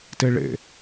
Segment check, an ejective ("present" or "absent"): absent